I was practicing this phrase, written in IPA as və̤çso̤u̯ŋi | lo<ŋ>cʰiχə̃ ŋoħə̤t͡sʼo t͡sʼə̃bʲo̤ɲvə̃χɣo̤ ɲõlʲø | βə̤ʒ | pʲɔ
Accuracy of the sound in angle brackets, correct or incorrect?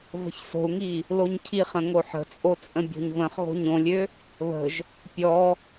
incorrect